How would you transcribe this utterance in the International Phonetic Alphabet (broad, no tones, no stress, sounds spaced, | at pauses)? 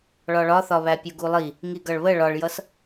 ɭ ɒ ɭ ɒ θ ɒ β æ pʲ u ɡ u lˠ i | ŋ i ɡ ʌ ɭ β ə ɭ ɒ ɭ j ʌ s